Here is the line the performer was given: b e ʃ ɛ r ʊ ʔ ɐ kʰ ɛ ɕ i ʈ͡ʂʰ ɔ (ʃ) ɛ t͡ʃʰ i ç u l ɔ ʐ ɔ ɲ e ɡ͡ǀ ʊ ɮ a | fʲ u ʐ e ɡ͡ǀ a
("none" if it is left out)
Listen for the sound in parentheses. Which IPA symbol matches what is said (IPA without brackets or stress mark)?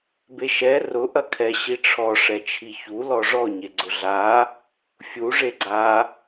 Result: ʂ